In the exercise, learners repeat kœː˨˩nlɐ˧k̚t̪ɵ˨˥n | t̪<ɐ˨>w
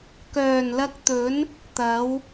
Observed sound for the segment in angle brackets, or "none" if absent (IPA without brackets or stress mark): ɐ˨˥